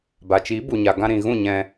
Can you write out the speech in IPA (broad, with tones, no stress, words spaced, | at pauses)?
ba˨t͡ʃi˨˦ bu˨ɲa˨ ɡã˧ɾĩ˨ɣũ˦˨ɲɛ̃˧